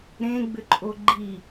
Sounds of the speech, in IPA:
ɾẽɡ͡bʏǃʼo ɡ͡ǃi

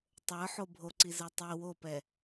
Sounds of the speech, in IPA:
tˤə˞ħo bʱoǀizə˞ tˤi wopɛ

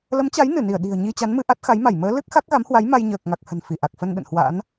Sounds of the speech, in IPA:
lə˨˦mt͡ɕa˨˦j nɨ˧˩ni˧˩ə̯ ɗi̤˨˩ə̯ ɲi˧t͡ɕa˨˦nmɨ˧ ʔa˦˥t̚xa˨˦jma˧˩j məː˨˦lɨ˦˥k̚ xa˦˥k̚ɣa˨˦mhwa˨˦j ma˧jɲəː˨˩k̚ŋa˨˩k̚ hə̤˨˩nfi˧˩ʔa˨˩k̚fə˧n ɗə̰˧˨nhwa̰˧˥n

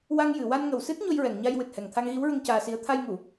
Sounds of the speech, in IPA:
wa˧ŋjɨ˨˩˨ wa˧nŋə˨˩wsɨ˦˥t̚ ɲo˧jɹɛ˨˩˨ŋɲa˧jwɨ˨˩t̚ hɛ˨˩ŋt̪ʰa˧ŋɣi˧˥wɹə˧ŋ caː˧si˧˥ə̯ t̪ʰa˧jŋu˨˩˨

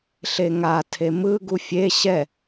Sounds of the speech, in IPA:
ɬeŋa tʰemɯ ɡufʲe ɕɛ

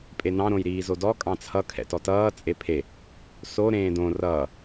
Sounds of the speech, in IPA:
pʼenɑ̃ ɾõjɾiːzodɔ kʼɑ̃t͡sʰʌ kʰɛ̰tɔtʌː t͡sʼepʰe | so ɾẽːdõ rʌː

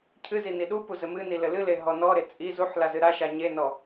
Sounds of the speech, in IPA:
cʰɨzi niɗupu zɘmɨni lɘlɨle ɦɔnɔɾe t͡sʼi zuħ lazɨɾaʃa ɲenɔ

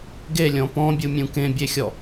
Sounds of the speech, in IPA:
ɡelʲɔ̃ pɔ̃bʲumʲũ kẽbʲexʲɔ

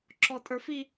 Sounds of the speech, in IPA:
ǁɔtʼə˞fi

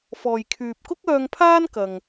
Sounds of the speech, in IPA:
fɔː˨j kʰyː˨p̚kʊ˥k̚œː˧ŋpʰaː˥n kɐ˧ŋ

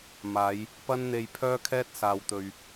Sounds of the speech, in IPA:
maː˨˧j | pɐ˥nn̪e˧jpʰœː˥kʰɛː˥t̚ saː˨wt̪ɵ˨ɥ

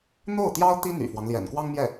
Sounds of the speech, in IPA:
n̪o˥˩ʊ̯t̪jɑ˥ʊ̯t̪i˥ n̪y̰˨˩fwɑ˦ŋ ljɛ̰˨˩nkwɑ˥ŋmjɛ˥˩

